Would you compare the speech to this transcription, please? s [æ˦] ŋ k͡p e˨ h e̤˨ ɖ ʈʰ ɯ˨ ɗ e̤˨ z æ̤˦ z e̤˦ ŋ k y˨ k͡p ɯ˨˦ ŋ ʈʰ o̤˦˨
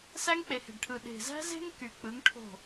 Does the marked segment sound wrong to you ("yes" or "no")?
no